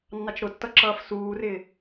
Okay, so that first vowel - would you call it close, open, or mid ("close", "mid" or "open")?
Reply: open